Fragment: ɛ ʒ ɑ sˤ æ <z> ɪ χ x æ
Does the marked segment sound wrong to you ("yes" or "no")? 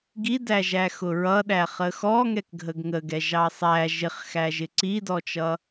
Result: yes